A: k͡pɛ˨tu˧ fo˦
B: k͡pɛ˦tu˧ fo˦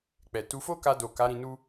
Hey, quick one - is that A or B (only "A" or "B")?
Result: A